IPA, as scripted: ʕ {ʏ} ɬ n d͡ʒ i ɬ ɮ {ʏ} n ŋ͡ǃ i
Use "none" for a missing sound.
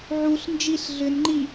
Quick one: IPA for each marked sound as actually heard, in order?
u, ʏ

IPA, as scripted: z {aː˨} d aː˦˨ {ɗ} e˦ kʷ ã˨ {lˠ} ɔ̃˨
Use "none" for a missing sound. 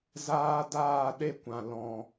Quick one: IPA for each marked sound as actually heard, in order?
aː˦, ɗ, l

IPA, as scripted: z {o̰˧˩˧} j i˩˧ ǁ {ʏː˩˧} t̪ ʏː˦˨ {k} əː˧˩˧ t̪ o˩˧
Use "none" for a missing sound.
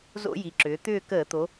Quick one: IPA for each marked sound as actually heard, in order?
o̰˧˩˧, ʏː˩˧, k

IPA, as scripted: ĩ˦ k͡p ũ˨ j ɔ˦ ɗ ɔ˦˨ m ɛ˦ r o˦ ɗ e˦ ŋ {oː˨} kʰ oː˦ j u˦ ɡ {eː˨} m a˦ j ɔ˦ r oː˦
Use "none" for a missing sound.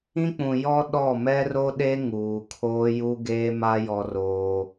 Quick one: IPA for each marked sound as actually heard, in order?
uː˨, eː˦

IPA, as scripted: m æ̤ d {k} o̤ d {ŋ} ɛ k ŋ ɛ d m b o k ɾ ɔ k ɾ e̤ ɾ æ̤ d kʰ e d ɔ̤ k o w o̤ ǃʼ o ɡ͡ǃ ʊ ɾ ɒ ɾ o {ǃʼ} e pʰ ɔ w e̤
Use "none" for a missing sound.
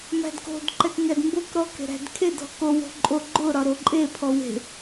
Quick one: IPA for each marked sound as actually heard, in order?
k, ǃ, ǃʼ

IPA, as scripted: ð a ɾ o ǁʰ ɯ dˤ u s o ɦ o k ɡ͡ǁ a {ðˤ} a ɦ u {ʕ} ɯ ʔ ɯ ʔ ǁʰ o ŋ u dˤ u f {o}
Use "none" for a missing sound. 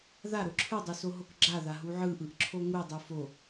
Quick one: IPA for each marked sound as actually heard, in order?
ð, ʕ, o

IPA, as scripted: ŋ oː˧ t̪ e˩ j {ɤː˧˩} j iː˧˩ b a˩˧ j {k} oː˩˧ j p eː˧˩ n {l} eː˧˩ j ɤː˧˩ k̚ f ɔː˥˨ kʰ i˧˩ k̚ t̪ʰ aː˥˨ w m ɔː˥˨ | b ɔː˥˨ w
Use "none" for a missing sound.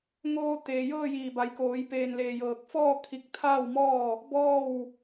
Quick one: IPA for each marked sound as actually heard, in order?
ɤː˥˨, k, l

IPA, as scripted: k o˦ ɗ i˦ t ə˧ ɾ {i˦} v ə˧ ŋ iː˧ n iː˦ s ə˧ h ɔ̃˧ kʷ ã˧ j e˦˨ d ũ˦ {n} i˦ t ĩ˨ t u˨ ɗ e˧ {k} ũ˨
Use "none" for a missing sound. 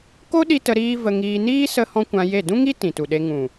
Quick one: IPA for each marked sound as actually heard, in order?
iː˦, ŋ, ŋ

